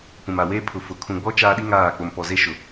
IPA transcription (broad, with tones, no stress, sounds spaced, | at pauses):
p ũ˨ m a˨ w eː˦ pʰ ʊ˨ f ʊ˨ kʰ ũ˨ ɡ͡b ɔ˦ t͡ʃ aː˦ ɗ i˦ ŋ aː˦˨ k͡p o˨ m p ɔ˨ z e˦ ʃ ʊ˨